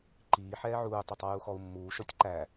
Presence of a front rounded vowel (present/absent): absent